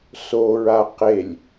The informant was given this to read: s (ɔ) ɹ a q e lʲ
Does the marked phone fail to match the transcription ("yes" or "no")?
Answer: yes